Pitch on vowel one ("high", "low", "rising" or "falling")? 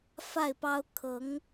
falling